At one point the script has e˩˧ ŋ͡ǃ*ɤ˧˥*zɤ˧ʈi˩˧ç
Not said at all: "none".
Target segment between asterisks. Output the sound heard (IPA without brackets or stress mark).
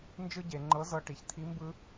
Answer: ɤ˧˥